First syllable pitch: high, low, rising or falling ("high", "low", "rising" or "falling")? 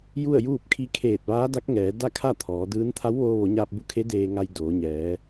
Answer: falling